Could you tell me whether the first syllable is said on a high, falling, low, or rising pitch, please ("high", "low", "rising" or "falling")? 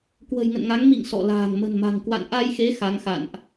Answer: low